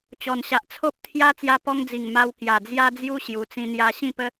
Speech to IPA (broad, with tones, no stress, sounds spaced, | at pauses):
t͡ɕ ɔ˨˩ n ɕ a˨ ʔ t͡sʰ o˦ p̚ t̪ʰ j a˦ t͡s j a˧ p ɔ˧ ŋ d͡z i˨˩ ŋ m a˧ w k j a˨˩ d͡z j a˦ d͡z j u˦ ɕ j u˨˩ t͡s ĩ˧ n̪ j a˧ ɕ ĩ˥˧ p ə˦